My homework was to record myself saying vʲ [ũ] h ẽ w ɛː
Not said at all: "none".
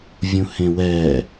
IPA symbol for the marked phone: ũ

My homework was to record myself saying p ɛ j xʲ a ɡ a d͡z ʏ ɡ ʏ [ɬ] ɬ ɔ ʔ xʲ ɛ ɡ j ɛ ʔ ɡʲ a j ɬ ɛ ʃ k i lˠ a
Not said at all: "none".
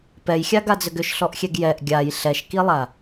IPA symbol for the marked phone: ʃ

